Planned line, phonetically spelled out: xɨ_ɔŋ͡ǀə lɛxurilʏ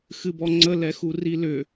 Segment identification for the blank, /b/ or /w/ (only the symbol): b